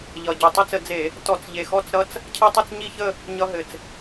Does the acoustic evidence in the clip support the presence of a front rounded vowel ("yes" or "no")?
no